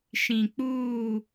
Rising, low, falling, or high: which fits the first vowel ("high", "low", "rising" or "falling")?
low